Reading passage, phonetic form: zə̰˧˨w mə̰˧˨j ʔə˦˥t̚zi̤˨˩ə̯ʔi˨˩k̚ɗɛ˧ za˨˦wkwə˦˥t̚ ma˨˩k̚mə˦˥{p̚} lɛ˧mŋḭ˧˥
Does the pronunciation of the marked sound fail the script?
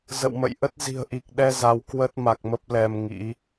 no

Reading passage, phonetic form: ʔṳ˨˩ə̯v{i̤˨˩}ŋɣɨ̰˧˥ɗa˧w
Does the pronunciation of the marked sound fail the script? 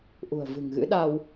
yes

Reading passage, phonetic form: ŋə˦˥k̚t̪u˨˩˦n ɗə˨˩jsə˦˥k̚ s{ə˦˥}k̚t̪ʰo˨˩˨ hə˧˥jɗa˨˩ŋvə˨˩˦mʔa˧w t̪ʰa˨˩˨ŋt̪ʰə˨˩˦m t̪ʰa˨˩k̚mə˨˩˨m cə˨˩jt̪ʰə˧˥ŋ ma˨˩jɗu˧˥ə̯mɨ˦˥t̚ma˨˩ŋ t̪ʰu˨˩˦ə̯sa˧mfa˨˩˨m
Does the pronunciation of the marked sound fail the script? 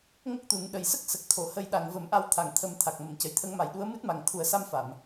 yes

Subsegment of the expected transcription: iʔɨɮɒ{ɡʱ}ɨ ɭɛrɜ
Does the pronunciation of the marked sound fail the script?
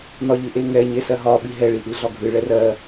no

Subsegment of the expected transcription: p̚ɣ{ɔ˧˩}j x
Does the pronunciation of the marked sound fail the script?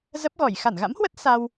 no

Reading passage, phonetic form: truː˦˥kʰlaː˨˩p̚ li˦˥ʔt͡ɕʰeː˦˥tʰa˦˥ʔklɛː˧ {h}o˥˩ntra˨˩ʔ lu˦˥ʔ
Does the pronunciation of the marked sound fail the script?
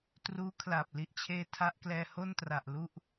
no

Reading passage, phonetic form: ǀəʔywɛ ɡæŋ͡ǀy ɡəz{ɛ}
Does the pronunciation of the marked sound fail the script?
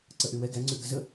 yes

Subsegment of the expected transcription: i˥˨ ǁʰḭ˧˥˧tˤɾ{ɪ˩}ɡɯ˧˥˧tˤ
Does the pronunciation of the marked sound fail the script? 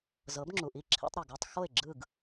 yes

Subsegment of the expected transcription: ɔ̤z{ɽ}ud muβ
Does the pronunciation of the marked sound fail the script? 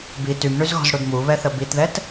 no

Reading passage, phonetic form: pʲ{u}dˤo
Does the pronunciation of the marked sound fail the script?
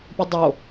yes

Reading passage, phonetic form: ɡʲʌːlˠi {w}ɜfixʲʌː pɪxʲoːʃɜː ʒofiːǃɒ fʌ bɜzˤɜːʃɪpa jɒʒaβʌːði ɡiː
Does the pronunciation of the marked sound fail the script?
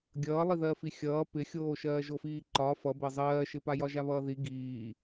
yes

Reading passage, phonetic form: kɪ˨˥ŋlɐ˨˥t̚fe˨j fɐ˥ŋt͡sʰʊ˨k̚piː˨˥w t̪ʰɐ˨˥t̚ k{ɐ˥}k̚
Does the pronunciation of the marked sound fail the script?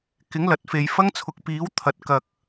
yes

